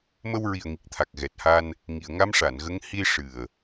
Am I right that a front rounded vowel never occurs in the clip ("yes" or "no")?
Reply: yes